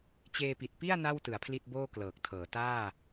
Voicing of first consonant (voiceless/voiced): voiceless